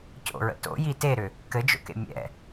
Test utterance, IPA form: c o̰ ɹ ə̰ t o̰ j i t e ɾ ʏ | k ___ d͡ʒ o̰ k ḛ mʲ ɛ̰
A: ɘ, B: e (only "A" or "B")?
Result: A